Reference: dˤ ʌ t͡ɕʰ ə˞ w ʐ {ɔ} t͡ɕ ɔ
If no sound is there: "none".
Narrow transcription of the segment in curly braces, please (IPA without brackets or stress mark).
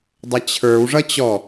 ʌ